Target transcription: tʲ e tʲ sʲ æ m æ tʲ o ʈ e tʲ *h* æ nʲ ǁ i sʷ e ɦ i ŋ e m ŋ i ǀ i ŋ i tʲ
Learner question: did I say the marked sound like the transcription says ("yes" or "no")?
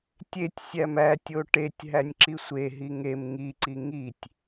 no